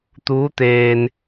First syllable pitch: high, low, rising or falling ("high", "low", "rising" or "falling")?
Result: rising